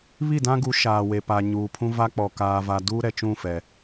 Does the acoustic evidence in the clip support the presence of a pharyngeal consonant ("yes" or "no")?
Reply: no